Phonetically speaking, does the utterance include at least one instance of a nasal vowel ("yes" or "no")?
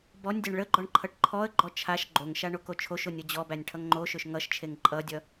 no